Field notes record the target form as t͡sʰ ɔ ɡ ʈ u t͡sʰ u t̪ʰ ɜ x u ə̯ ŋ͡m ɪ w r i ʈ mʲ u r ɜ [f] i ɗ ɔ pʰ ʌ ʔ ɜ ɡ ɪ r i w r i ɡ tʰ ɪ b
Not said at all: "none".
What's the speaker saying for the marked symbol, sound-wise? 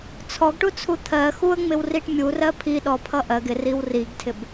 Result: pʰ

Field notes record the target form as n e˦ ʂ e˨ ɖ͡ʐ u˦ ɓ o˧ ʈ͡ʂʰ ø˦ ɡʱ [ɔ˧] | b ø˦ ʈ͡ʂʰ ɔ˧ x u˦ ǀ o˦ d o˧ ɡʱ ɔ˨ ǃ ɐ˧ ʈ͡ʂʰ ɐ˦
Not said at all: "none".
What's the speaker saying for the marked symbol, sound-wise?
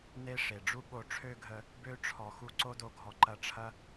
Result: ə˧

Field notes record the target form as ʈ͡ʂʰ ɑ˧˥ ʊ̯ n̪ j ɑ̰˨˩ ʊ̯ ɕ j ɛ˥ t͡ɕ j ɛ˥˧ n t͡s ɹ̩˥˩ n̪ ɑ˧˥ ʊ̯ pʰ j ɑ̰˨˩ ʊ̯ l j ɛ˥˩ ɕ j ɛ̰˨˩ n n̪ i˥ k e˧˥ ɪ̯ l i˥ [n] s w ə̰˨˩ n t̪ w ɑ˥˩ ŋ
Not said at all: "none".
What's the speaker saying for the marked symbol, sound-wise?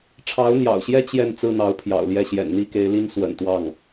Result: n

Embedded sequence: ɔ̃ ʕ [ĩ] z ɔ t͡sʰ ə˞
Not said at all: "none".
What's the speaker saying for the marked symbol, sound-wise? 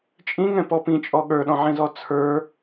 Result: ĩ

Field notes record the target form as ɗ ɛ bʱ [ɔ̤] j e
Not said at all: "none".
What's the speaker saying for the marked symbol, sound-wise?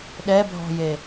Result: ɔ̤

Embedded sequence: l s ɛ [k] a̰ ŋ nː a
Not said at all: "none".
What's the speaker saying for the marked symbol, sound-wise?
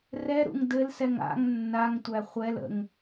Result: ŋ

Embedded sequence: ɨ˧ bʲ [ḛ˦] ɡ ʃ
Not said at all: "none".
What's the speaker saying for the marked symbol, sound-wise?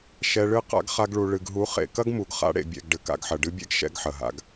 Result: ɛ̰˦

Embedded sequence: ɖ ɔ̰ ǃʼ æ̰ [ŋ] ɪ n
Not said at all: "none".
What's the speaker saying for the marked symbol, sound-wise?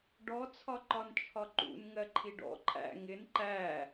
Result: ŋ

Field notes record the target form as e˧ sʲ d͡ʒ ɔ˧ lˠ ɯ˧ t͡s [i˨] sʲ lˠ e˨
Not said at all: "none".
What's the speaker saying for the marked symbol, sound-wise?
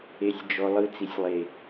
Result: i˨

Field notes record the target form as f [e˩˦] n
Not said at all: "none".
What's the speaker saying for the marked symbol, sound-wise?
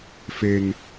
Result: e˧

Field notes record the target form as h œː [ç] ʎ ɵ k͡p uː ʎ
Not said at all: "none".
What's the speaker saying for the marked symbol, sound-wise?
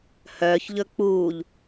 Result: ç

